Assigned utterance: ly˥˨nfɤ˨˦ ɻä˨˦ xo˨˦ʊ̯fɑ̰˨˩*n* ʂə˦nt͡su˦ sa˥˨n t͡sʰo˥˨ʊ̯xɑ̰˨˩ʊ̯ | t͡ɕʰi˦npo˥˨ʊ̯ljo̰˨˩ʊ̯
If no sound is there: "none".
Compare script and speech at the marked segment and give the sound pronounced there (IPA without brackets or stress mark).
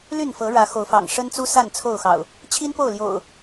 ŋ